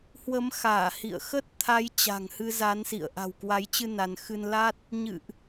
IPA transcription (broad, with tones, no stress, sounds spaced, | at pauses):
h w ə˨˦ m x aː˧˩ h ḭ˧˨ ə̯ x ə˦˥ t̚ t̪ʰ a˨˦ j t͡ɕ a̤˨˩ ŋ h ɨ˧ z a˨˦ n s ḭ˧˨ ə̯ ʔ a̤˨˩ w k w a˨˦ j t͡ɕ ɨ˧ n a˧ n x ɨ˧ n l a˦˥ t̚ | ɲ ɨ̰˧˨ ʔ